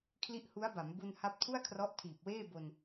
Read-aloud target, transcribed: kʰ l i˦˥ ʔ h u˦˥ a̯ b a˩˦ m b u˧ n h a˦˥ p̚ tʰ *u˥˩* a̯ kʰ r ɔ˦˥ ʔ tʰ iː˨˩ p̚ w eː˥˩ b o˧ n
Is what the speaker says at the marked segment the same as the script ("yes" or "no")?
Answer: yes